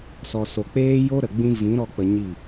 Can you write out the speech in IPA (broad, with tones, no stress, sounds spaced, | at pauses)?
s ɔ˨ s o˨ k͡p eː˦ j o˦ ɾ ə˨ ɡ͡b ĩ˦ v ĩ˨˦ ɾ ɔ˧ k͡p ə˧ ɲ i˦˨